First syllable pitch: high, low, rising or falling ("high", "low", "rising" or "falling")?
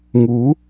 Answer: rising